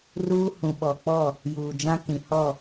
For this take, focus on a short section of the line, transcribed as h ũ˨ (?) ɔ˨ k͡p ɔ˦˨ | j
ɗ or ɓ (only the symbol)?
ɓ